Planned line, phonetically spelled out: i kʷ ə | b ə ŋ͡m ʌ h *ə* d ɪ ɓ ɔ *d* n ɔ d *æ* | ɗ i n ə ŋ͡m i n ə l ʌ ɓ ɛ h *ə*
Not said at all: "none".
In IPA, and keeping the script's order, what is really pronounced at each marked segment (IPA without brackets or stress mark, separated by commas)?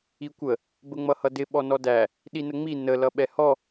ʌ, none, æ, ɔ